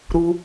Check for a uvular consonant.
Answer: absent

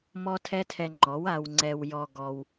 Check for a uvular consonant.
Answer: absent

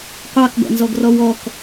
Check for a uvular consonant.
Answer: present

